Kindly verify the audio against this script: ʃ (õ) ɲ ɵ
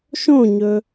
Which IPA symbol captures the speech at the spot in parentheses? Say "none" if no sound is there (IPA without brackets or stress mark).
õ